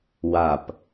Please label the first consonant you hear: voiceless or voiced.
voiced